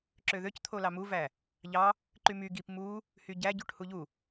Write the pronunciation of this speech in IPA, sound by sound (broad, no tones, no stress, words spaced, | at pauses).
ǁøðøct̪ʰolɑ muvæ | ʎɑ | ǃymy ɡip mu | hyɟæɟuʈ huʎu